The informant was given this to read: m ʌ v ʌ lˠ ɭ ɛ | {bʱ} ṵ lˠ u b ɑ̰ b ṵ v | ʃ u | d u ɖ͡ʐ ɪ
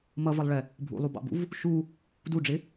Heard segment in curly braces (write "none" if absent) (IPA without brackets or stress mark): bʱ